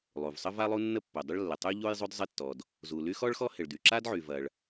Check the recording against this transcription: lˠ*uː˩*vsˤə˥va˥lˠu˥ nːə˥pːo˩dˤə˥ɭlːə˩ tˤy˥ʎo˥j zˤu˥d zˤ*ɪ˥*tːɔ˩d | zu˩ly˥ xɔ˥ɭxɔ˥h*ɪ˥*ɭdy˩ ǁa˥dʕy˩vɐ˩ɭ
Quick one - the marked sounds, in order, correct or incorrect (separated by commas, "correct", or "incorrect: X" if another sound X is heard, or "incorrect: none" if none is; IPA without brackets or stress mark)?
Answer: incorrect: u˩, correct, incorrect: ɪ˩